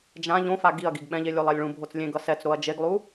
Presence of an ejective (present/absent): absent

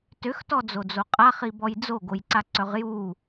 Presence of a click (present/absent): present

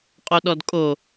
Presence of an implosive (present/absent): present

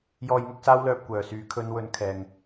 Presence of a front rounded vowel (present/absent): present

